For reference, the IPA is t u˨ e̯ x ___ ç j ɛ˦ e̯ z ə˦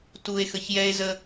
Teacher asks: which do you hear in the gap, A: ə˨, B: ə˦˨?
A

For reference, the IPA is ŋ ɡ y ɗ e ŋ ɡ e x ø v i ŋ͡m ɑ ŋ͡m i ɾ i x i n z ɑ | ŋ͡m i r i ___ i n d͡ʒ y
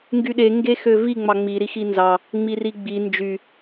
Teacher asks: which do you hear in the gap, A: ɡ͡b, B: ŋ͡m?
A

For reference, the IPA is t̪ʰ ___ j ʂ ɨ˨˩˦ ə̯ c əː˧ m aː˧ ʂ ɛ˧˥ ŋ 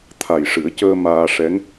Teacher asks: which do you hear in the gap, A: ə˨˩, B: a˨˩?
B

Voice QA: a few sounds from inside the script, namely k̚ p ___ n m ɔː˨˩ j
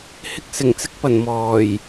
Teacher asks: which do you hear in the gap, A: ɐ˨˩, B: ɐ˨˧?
A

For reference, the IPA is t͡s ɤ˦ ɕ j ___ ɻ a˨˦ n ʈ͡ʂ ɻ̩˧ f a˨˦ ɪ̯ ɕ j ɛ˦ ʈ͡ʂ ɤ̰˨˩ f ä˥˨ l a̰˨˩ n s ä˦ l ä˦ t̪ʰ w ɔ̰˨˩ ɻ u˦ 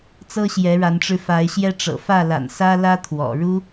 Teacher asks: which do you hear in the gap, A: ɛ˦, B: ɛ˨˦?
B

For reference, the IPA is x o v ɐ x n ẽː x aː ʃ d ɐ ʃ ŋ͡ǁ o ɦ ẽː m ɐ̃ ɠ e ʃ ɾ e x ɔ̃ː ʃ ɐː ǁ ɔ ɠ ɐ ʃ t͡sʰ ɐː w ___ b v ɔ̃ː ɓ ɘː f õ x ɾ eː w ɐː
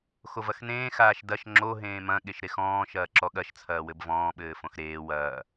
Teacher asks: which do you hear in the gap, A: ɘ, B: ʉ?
A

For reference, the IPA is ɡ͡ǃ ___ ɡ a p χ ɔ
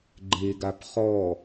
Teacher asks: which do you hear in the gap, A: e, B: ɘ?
A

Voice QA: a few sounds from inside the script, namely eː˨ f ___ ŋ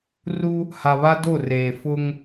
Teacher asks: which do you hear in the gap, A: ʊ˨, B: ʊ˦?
B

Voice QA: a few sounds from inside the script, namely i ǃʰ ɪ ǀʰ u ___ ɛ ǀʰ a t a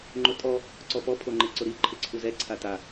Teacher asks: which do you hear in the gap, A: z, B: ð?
A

